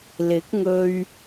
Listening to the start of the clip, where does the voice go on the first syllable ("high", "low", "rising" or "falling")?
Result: rising